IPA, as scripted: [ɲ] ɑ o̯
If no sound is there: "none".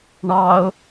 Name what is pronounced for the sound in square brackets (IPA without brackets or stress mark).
ɳ